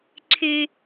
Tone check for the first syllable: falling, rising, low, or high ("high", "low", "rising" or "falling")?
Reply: low